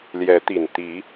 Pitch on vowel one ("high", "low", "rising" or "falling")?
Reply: rising